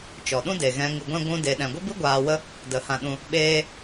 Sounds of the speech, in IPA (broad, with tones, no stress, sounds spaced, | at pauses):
t͡ʃ ɔ˨ ɗ ũ˦ d e˨ ɣ ɛ̃˧ ŋ ɨ˨ ɡʷ ɛ̃˧ ɡʷ ũ˧ d e˨ ɗ ɛ̃˨ ɡʷ ə˦ b ɨ˦ ɡʷ aː˧ w ə˦ | d ə˨ h ã˧ ɗ ũ˧ | ɓ eː˦